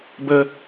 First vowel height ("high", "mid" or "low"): mid